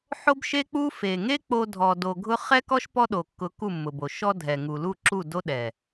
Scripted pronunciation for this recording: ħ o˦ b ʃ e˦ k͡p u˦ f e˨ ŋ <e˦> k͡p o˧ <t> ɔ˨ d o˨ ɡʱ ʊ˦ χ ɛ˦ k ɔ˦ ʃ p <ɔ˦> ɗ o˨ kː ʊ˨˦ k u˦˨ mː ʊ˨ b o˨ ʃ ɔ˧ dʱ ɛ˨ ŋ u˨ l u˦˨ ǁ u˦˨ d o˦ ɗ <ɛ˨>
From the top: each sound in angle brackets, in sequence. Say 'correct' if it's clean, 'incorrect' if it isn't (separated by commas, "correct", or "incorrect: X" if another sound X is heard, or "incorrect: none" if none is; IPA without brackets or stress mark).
correct, incorrect: dʱ, correct, correct